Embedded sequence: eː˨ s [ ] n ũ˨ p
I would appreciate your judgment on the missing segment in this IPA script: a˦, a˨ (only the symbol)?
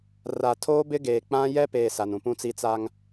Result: a˨